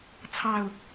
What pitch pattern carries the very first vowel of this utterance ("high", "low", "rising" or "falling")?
low